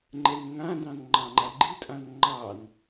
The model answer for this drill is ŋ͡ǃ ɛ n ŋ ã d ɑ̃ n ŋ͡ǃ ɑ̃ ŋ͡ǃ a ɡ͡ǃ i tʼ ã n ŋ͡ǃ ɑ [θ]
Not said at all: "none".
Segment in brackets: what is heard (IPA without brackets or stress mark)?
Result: n